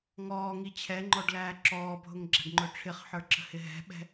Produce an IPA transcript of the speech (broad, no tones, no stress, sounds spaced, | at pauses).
ŋ ɔː ŋ i t͡ɕʰ ɛ ŋ͡ǃ ɔ ɖ l æː ǁ ɔː bʱ ʊ ŋ ɡ͡ǁ æ̤ ɖ ŋ͡ǃ ʊ ʈ͡ʂʰ ɪ χ ħ ə˞ ǁ ə̤ h ɪ ɦ ɛ̤ ɓ ɛ̤